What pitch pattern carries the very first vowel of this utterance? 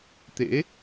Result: rising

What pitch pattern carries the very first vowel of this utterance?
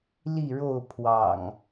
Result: falling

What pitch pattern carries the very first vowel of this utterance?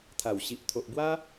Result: low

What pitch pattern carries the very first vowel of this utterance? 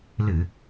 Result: low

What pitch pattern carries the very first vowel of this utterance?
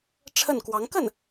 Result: falling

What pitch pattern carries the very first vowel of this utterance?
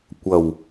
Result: low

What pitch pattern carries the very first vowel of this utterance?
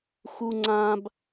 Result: high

